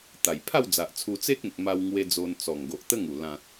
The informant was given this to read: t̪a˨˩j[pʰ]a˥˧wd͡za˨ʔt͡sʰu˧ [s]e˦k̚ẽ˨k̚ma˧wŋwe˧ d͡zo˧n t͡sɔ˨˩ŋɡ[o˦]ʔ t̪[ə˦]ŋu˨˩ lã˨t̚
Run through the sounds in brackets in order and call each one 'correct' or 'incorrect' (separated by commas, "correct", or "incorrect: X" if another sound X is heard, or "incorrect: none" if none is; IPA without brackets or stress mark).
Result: correct, incorrect: t͡s, incorrect: o˨, correct